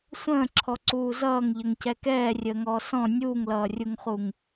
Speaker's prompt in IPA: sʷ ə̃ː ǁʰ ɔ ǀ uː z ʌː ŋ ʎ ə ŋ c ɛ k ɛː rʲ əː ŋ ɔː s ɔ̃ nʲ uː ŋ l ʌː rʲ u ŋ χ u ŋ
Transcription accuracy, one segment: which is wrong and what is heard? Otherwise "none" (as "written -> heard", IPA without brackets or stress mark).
none